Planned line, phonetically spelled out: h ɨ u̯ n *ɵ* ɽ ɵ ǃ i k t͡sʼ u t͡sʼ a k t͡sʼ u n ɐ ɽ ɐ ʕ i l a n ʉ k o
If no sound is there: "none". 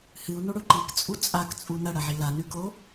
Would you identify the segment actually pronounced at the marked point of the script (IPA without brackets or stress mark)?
o